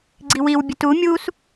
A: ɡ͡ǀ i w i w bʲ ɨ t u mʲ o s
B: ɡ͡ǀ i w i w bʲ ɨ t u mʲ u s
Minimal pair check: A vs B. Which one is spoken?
B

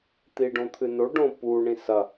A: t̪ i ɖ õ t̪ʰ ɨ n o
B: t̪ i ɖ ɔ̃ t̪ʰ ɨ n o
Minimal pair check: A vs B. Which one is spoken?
A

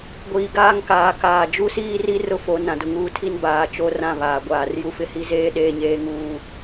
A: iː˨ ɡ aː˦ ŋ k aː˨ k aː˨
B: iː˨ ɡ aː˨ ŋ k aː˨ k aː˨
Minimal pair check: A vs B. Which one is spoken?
A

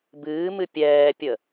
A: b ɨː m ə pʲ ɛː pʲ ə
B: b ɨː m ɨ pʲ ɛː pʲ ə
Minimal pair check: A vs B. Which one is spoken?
B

